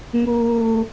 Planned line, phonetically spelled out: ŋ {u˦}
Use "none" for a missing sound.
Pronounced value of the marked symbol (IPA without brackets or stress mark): uː˦